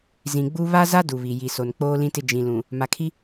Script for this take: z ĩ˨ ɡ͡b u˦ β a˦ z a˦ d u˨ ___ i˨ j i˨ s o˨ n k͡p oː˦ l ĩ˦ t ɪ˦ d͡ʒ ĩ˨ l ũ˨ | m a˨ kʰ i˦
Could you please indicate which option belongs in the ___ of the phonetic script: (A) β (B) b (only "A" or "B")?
A